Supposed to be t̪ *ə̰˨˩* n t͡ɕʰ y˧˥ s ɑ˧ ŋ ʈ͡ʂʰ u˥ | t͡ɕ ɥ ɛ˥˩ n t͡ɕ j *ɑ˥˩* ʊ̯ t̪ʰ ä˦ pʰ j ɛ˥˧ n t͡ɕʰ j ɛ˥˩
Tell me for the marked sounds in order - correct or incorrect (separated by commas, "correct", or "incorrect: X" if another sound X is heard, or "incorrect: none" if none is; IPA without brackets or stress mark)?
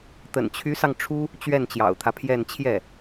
correct, incorrect: ɑ̰˨˩